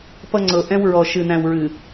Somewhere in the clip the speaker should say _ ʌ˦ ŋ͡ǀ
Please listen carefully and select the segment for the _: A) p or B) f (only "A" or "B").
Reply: A